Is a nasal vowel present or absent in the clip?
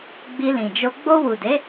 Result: present